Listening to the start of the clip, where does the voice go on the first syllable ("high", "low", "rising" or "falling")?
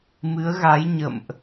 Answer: rising